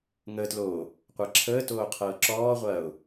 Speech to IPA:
ŋ əː t l oː | qʷ a ǁʰ əː t oː qʰ ɤː ǁ ɔː ʁʷ ɐː ʊ̯

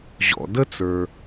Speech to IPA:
ʑ ɔ̰˩ d ə˦ t͡s ə˞˩

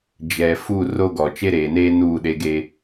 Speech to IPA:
d͡ʒ ɛ˨ f u˦˨ r o˦ ɡ ɔ˨ t͡ʃ e˦ ɾ eː˨ n eː˦ n uː˦˨ ɗ e˦ ɡ eː˦

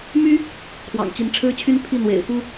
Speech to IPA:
m y˥ | kʰ w ɑ̰˨˩ ŋ t͡ɕ i˧˥ n ʈ͡ʂʰ ɻ̩˥ t͡ɕʰ y˥ n pʰ i˥˩ n̪ w ḛ˨˩ ɪ̯ f u˥

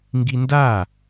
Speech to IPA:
ŋ ɡ i n d a

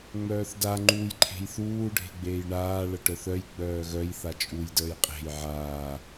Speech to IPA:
ŋ͡m œː θ d a ŋ͡ǃ uː j ǃʰ e̤ j θ uː ɖʱ e̤ ɡ͡b eː j ɳ aː ɭ ə ʈ œ θ œ j ɡ͡b œː ɣ œ j θ a t͡ʃʼ u j d əː j qʼ e̤ j ʕ aː

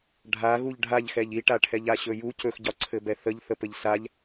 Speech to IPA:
ɖʱ a ɣ u ʎ ɖʱ a ʎ x ɛ ʎ i ʈ a ʈʰ ɛ ʎ a ɕ ɵ j u c ɵ x ɟ ɒ ǀʰ ɘ b ɛ θ ə ʎ θ ə p ɘ ʎ s a ʎ

